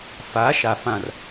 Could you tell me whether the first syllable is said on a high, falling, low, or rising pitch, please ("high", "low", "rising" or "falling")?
rising